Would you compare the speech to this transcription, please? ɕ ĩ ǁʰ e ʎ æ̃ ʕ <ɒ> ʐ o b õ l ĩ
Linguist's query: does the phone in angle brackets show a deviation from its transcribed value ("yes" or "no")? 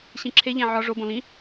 no